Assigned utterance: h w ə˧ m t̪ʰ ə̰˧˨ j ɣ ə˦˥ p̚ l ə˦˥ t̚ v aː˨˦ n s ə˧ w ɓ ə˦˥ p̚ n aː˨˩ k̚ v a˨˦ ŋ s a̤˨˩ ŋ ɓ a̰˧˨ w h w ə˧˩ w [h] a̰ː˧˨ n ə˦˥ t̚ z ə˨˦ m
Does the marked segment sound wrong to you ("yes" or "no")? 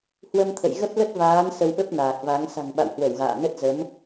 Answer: yes